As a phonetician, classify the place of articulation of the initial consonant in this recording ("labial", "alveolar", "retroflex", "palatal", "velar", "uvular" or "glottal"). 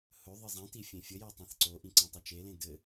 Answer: glottal